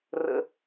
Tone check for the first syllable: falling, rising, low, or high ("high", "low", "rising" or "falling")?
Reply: high